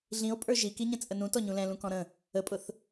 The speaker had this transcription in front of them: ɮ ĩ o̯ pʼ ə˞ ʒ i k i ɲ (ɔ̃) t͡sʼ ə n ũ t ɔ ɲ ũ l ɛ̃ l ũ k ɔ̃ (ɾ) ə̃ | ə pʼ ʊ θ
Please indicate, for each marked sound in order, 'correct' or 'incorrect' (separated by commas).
incorrect, correct